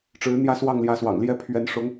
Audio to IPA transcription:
ʈ͡ʂɻ̩˧˥n̪jä˥˧ swɑ˥˩ŋljä˧˥swɑ̰˨˩ŋ ljɛ˥˩pʰɥɛ˧˥n ʂʊ˧˥ŋ

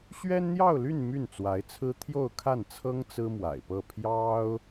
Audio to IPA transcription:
ɕɥɛ˥nn̪jɑ˥˧ʊ̯ly˥˧n my˥˩nt͡swa˧˥ɪ̯t͡sʰɹ̩˥ t̪ʰjo˥˧ʊ̯kʰa˥˩nt͡sʰɤ˥ŋ t͡sɹ̩˥mwa̰˨˩ɪ̯pɤ˥˩ pʰjɑ˥ʊ̯

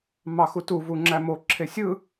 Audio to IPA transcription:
mɑxutu vuŋ͡ǁæmo ǁʰesʲɯ

